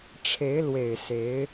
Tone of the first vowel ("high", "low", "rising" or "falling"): rising